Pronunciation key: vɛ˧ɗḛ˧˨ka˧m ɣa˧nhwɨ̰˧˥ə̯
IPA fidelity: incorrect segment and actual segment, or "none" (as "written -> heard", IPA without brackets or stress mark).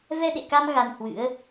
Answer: none